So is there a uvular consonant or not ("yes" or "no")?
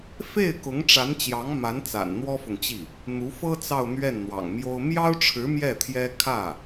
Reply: no